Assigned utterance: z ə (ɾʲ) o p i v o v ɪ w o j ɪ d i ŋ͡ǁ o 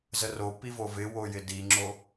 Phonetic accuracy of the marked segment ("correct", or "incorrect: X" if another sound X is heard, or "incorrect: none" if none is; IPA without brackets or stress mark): incorrect: r